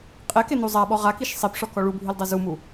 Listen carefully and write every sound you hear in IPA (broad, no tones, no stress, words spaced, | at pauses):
qʼɛkenu zˤaɓɔ ʁakiʃ sˤipʂɔkɔ ɭubʱildˤɛ zumu